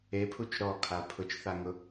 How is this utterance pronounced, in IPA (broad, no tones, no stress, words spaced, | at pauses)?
epʰut͡ʃ ɾɔkʰa pʰʊt͡ʃθaŋʊ